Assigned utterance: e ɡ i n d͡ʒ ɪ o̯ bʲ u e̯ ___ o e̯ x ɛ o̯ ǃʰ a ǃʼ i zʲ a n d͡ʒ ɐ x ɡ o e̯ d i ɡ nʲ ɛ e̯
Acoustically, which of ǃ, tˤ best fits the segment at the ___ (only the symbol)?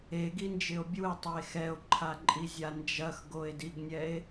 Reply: tˤ